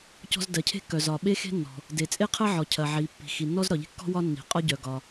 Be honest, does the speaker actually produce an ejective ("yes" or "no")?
yes